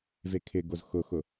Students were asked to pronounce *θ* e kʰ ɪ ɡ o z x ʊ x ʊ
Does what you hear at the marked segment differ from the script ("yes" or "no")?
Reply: yes